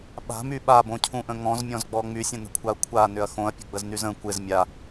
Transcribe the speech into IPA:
ɓ a̤ m y ɓ a b õ cʰ ũ ʔ ə̃ ŋ ɔ̃ z mʲ ɔ̃ z ɡ͡b ɔ ŋ͡m y sʲ ə̃ n ə̤ kʷʰ a ɐ̯ kʷʰ a n ʏ ɐ̯ x õ ɐ̯ pʲ ə̤ ɡ͡b ə z n y z ə̃ kʷ ɪ z mʲ a

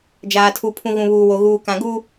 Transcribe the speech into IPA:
d͡ʒ aː˨ tʰ u˨ pʰ ũ˨ ɣ ũ˨ β uː˨ w o˨ ɣ uː˨ k ã˨ ɡ uː˦

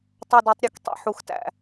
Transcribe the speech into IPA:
tˤ ɑ˧˩ d æ˧ tˤ ɾʲ ø˧˩ k tˤ ḭ˧˩ ħ u˩˧ x t æ̰˧˩

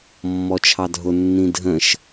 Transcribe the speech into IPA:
mː ɔ t͡ʃʰ ɑ dʱ ʊ nː ĩ dʱ ə̃ ʃ

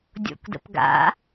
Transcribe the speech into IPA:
dʲ o̰ k d ə̰ p ɡ a̰

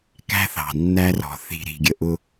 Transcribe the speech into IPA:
k æ̤˦ θ ɑ̤˨ nː æ˦ r ɔ̤˨ θ i̤˨ ɾ i̤˨ ɡʲ ə˨ ʔ ʊ˦

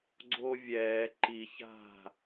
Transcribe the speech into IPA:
ɡ͡ǀ o vʲ ɛː ǃ i ç a̤

